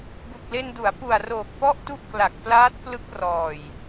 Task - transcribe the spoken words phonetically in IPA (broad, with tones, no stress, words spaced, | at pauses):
bu˨˩k̚le˧ndu˩˦a̯ pu˨˩a̯roː˨˩k̚pɔ˥˩ʔtu˥˩ʔ kla˨˩k̚plaː˦˥t̚plɯ˦˥k̚rɔː˨˩j